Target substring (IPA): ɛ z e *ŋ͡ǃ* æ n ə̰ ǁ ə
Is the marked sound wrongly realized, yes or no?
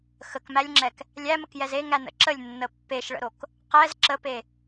yes